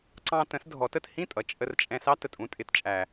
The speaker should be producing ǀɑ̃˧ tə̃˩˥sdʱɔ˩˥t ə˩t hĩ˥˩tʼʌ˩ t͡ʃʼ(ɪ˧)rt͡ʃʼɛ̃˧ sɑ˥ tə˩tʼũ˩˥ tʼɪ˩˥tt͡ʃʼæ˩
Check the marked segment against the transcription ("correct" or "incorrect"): incorrect